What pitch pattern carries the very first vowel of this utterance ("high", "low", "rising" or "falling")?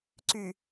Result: low